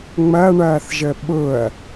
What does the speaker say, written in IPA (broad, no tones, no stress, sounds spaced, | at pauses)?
ŋ͡m ɐ ɳ ɐː θ ʒ ə ɓ ʊ ɐ̯